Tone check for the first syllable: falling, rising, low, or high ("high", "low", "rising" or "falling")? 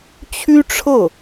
high